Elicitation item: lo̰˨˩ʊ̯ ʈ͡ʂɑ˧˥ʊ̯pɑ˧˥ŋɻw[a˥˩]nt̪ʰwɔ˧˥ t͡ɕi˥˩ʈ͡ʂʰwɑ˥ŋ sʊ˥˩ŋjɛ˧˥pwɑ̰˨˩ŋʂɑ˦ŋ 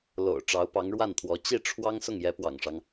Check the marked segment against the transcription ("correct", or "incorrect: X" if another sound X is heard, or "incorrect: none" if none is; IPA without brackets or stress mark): correct